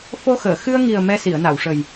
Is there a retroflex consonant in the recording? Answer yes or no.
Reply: yes